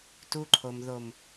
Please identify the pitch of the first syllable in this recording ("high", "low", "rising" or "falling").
high